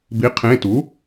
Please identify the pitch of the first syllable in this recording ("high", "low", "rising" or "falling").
rising